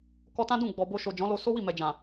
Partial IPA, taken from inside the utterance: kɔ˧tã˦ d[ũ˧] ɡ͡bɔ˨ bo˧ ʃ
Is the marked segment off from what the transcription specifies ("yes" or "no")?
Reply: yes